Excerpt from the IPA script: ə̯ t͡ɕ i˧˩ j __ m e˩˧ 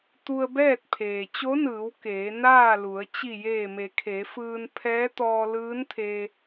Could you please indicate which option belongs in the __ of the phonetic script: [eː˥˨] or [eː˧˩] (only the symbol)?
eː˧˩